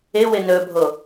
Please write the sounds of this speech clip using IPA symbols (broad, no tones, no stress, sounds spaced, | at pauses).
ɪ w ɪ n ɵ bʱ o